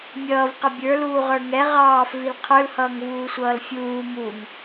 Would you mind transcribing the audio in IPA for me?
mʲʌːvqə bʲə˞luːʁə˞ ŋɛ ʁɑːfvil qʰə˞lhʌːŋvuːsʷʌːl fʲuː muŋ

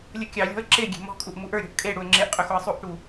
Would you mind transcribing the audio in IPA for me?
lʲəkʲɑlʲɔ̤ə̯ ǁeɡʲe̤ mɔ̤kʼuʔ muʔə˞ɾʲɔ̤ʔ kʼe ɽuə̯ŋ͡ǁeʔqʼʏ xoə̯sˤuʔʈu

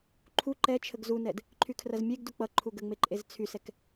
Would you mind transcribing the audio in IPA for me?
ǃʰu ǃɛt͡ʃʰəɡ zunɛd | ǃʰykʰrɐzmʲeɡdu k͡pʌ ǃʰuɡəŋ͡me ǃʼezt͡sʰysɛk

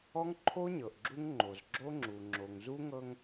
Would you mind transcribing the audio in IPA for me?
ɔ˦ŋǃʰo˦ ɲɤ˨ʔɡ͡ǁu˦ŋŋ͡ǃo˨z ɡ͡ǁo˦ŋ͡ǁu˨ ŋ͡ǁo˨ŋzu˦ŋɤ˦ŋ

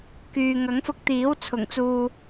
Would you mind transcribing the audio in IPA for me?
kyː˨ ŋɐ˨˥ŋfʊ˧k̚t̪iː˨˥w t͡sʰʊ˨˩ŋt͡suː˨

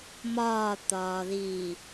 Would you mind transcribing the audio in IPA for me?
mɒːt̪ɒːðiː

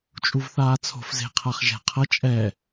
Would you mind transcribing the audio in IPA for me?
t͡ʃʼuvθaːt͡sʰo̤f ze̤ qʰaχʒɛ̤ qʰʌ t͡ʃʼɛ

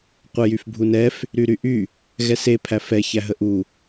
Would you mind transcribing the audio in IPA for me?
qʷɛjyfbʱunɛf | ɾyɾyʔy | ɣɛse pʰæfɛ çæɦəʔu

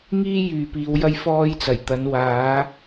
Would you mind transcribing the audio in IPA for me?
ŋiː˥jyː˨piː˨˧w jɐ˥jfɔː˥jt͡sɐ˨˩jt̪ɐ˨˥n waː˨˥

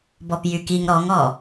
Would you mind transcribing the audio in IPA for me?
bɔpjykiŋ ɾɔŋɔ

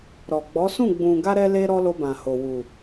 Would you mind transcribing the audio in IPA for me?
ɾɔ˨ɡ͡bɔ˨˦sũ˦˨ ɡ͡bũ˨ɡa˧ɾɛ˧ le˦ɾɔ˦ lo˧bã˨ho˨ wu˨

